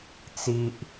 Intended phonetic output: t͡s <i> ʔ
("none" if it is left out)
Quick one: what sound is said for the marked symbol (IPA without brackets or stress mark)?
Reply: i